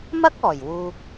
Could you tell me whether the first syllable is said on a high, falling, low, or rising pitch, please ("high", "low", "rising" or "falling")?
high